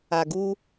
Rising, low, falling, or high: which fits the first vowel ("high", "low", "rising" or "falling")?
low